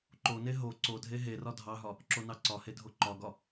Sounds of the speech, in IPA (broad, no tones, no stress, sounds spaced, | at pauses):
ǃ o n e ɦ o ǀ o dʱ e ɦ e r ɒ dʱ ɑ ɦ ɒ | ǁ o n ɑ ǀ ɒ h e dʱ o ǃ ɒ ɡ ɒ